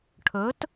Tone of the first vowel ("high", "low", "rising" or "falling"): rising